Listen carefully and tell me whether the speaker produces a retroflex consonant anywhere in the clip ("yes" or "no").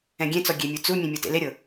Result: no